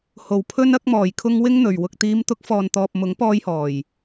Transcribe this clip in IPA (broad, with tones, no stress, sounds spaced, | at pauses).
h o˨˩ w pʰ ɵ˧ n ɐ˧ k̚ m ɔː˨˩ j kʰ ʊ˧ ŋ w ɪ˥ ŋ n̪ ɵ˨ ɥ w ʊ˧ k̚ t̪ iː˨˧ m t̪ ʊ˨˥ k̚ f ɔː˨ n t̪ ɔː˨ p̚ m ʊ˨˥ ŋ p ɔː˧ j h ɔː˨˩ j